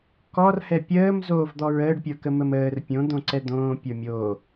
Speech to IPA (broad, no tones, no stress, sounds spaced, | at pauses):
k ɔ r h ɛ pʲ əː m z oː v d̪ ɔ ɹ əː ɖ pʲ ə˞ k ə m ə m əː r pʲ õ d̪ õ ǀ ɛ d̪ õː pʲ ə˞ mʲ oː